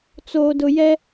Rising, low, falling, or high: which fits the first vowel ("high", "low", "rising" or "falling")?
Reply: low